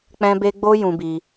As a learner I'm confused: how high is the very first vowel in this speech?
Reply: mid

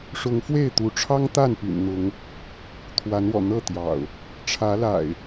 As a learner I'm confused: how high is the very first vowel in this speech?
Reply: high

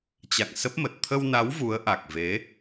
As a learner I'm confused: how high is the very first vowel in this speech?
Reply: low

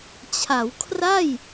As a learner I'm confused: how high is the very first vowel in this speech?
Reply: low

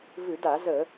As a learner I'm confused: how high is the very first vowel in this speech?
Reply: high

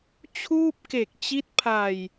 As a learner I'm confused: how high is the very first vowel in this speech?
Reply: high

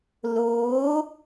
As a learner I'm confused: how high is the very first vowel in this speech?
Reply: mid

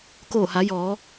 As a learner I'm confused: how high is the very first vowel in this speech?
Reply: mid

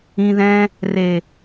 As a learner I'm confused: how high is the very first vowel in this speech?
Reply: high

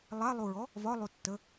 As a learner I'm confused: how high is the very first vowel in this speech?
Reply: low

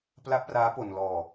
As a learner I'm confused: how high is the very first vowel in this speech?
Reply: low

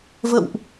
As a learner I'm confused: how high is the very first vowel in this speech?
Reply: mid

